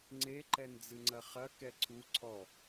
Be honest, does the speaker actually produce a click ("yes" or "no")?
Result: yes